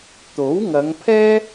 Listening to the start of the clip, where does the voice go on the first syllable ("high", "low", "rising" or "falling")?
rising